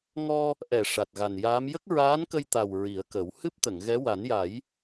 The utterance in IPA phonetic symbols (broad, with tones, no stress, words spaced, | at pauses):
ŋɔ˧ | ʔɛ˨˩˨ ʂa˨˩t̚ɣa˨˩njaː˧˥m jə˦˥k̚ɹaː˧˥nkə˧jt̪a˨˩w ɹi˨˩˦ə̯kə˨˩˦w hɨ˦˥p̚t̪ə˨˩˨ŋ ɣɛ˧˥ wa˨˩˦nja˨˩˦j